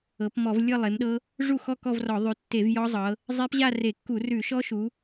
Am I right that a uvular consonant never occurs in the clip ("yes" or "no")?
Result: yes